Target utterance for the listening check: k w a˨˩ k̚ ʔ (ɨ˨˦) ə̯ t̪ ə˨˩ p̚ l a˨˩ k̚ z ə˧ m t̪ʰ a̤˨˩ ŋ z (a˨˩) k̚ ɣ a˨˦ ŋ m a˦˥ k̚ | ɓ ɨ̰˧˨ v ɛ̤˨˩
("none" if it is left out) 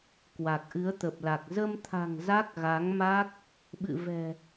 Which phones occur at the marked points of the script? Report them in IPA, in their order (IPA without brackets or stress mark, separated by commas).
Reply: ɨ˨˦, a˦˥